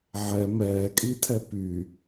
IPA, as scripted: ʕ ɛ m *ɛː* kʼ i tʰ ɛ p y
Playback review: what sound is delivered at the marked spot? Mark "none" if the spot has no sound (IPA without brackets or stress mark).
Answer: ɛː